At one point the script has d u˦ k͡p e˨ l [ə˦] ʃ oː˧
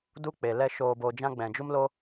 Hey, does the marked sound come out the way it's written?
no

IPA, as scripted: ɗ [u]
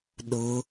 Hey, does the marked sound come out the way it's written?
no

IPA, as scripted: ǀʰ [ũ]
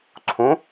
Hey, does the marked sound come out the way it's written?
yes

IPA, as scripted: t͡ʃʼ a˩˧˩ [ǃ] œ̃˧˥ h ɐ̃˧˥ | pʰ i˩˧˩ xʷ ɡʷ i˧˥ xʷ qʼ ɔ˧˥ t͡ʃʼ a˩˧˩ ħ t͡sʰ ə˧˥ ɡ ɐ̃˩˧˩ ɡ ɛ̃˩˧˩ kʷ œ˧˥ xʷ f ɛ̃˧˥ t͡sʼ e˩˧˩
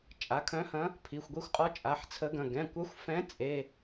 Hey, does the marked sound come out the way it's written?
no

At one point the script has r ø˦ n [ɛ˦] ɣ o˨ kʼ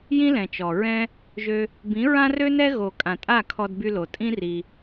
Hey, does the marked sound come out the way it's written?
yes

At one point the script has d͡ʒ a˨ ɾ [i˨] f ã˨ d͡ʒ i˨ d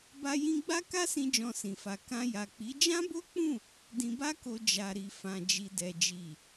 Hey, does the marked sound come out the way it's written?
yes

